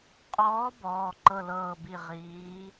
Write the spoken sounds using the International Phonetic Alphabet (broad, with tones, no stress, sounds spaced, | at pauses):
qʼ ɔː˧˥ b ɔː˩˧˩ ǃ ɤ˦˨ l ɤː˦˨ b i˦˨ ʁ iː˧˥